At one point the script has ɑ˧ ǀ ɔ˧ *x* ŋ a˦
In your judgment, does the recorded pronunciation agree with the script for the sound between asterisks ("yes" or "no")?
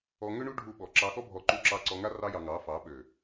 no